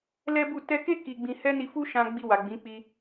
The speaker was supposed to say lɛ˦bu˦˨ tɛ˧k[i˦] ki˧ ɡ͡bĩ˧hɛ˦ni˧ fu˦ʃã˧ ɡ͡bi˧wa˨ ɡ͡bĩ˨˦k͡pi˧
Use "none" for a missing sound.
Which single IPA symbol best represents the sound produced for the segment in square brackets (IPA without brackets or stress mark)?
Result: e˦